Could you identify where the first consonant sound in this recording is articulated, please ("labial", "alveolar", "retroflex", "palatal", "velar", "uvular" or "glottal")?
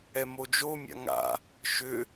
labial